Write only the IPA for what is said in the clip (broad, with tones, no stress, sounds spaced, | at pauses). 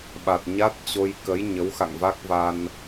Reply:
ɓ a˨˩ t̚ ɲ a˦˥ t̚ t͡ɕ o˧ j k ə˨˦ j ɲ ə˨˦ w x a̰˧˨ ŋ v a˦˥ k̚ v a˧ n